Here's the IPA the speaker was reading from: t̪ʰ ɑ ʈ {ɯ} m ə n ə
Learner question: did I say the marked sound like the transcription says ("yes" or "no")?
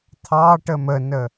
no